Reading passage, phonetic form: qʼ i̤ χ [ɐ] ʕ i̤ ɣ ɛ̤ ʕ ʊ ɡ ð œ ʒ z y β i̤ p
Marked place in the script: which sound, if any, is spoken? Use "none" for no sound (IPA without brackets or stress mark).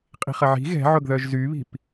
ɐ